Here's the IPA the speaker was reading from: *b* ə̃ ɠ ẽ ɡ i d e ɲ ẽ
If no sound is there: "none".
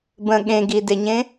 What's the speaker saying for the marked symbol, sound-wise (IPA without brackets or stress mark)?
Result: b